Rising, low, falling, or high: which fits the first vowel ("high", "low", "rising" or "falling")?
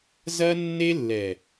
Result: high